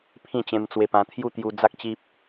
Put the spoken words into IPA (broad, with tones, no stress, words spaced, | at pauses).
pʰĩ˥˧t͡ɕẽ˧mt͡swe˧pã˧ t̪ʰju˦t̪ju˧d͡za˦k̚t͡ɕi˦p̚